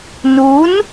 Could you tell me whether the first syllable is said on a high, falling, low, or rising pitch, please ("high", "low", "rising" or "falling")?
rising